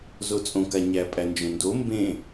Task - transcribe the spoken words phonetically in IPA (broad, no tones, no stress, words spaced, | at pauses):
zot͡sʼõka ɲæpʼænd͡ʒõndo mbẽ